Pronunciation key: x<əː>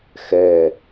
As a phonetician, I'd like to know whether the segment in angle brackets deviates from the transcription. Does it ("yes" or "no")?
yes